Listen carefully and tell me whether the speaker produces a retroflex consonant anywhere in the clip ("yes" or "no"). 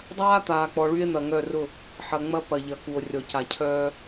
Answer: yes